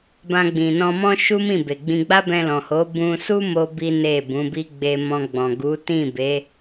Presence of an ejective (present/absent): absent